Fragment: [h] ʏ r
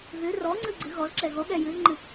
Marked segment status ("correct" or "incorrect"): incorrect